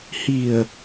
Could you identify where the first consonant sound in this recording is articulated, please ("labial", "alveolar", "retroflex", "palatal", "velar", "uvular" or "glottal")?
glottal